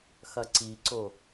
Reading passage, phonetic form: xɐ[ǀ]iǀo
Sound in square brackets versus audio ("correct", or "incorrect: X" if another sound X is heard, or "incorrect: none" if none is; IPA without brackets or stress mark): correct